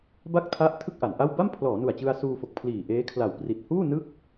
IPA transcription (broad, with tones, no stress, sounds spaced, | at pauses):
b a˥˩ k̚ tʰ a˦˥ ʔ tʰ ɯ˥˩ k̚ ʔ a˩˦ n ʔ a˥˩ w b a˥˩ m pʰ l ɔː˩˦ n u˨˩ a̯ t͡ɕ ɯ˧ a̯ s uː˧ f o˨˩ k̚ pʰ l iː˨˩ ʔ eː˦˥ kʰ l a˨˩ w p r i˨˩ t̚ h uː˥˩ n ɯ˥˩ k̚